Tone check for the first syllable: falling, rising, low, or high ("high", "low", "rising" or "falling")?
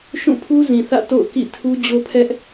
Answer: falling